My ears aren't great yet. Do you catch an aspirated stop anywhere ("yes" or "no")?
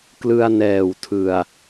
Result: yes